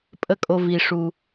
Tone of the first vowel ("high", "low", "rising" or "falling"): high